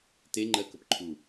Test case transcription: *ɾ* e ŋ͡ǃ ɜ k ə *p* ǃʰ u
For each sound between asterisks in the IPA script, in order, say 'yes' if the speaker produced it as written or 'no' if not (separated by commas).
no, yes